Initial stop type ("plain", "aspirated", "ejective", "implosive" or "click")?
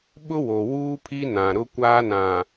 implosive